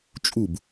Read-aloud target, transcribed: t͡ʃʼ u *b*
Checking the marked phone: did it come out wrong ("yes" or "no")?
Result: no